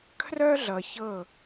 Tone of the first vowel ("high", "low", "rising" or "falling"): high